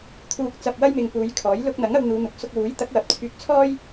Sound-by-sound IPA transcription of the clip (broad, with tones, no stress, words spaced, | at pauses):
t̪ʰuː˨k̚t͡sɐ˨p̚wɐ˧jmɪ˨ŋ puː˨˧jkʰɔː˨˥j lʊ˧k̚n̪ɐ˨˥ŋ ɐ˧wn̪uː˨˧n̪ʊ˨˥k̚ sʊ˧k̚wuː˨˥jt̪ɐ˨˥k̚wɐ˨p̚ t͡sʰyː˧k̚t͡sʰɔː˥j